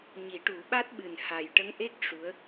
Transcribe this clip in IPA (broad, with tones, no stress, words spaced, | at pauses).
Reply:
ɲi˨˩˦ʈu˨˩˦ɓa˦˥t̚ɓɨ˨˩n ha˨˩jʈə˧˥ŋʔe˦˥k̚ ʂu˧˥ə̯